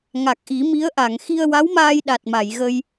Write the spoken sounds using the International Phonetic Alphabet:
ŋ a˨˩ k̚ ʔ i˨˩˦ m i˧˥ ə̯ ʔ a˨˩˨ ŋ x i˧ ə̯ w a˧˥ w m aː˧ j ɗ a˨˩ t̚ m a˨˩˨ j ɣ ə˧ j

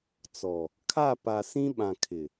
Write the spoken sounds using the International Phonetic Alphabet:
t͡s ɔ˨ | kʰ a˦˨ p a˨ s ĩ˦ ɓ ã˨ kʰ ɪ˨

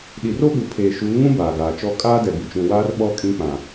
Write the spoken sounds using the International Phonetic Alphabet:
ɗ i˨ r o˦ ɓ u˨ pʰ eː˨ ʃ uː˨˦ ŋ ũ˦ b aː˨ ɡ aː˨ t͡ʃ ɔ˦ kʼ aː˦ d ɛ˨ b i˨ t͡ʃ ũ˨ w aː˦ r ɓ ɔ˦˨ kʼ ĩ˦ k͡p ã˨

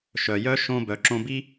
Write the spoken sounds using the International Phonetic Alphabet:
ʃ œ˩ j œ˥ ʃ õ˧ b œ˩˧ ǁ õ˧ b i˥

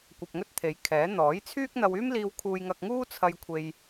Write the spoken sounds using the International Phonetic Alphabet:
kʷ ɐ˧ p̚ ŋ ɵ˥ t̚ t̪ʰ e˨˧ j kʰ ɛː˨˥ n̪ ɔː˨˥ j t͡sʰ yː˥ k̚ n̪ ɐ˧ w yː˥ m l iː˧ w kʰ uː˧ j ŋ ɐ˧ k̚ ŋ uː˥ t͡sʰ ɐ˧ j kʷʰ e˧ j

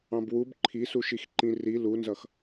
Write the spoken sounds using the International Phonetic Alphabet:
ɑ̃ b w u b ǃʰ i s u ʃ i x ǃ ĩ r i l u n z ʌ x

